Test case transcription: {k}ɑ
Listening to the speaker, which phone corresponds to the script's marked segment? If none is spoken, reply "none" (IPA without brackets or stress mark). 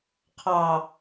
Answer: qʰ